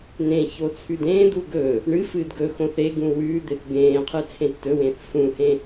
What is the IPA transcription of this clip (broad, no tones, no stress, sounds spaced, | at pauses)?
n ẽ ç o t͡sʰ ʉ d ẽː d̪ u ɡ ɵː | ɳ ɨ f ɨː d ɡ ɵ x õ θ e ɡ ũ w ʉː d̪ e θ ɡ ẽː qʰ ɨ t͡sʰ ẽ tː ɵ w ẽː θ f ũ h ẽ